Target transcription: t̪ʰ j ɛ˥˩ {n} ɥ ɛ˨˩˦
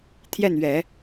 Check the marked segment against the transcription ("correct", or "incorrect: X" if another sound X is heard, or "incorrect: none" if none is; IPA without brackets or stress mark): correct